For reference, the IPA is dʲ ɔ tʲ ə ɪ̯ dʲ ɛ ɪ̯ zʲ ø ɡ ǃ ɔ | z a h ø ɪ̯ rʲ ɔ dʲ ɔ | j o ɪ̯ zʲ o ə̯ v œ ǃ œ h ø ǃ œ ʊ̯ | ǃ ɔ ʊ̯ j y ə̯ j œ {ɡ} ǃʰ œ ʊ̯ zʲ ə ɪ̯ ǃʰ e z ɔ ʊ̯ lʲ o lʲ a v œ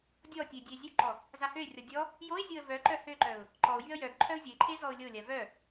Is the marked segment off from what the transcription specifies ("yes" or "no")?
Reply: no